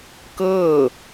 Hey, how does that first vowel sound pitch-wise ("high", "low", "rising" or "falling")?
falling